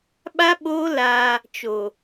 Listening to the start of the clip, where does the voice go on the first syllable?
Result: high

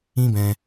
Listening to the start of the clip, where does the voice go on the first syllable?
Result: high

